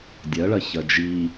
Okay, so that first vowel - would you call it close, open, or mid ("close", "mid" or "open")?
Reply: open